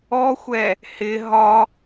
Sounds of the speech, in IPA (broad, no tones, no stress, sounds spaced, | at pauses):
ɔ xʷ ɛ | h ɪ ɦ ɒ